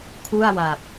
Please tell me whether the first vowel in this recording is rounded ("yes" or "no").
yes